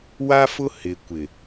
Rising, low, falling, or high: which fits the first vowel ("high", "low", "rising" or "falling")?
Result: high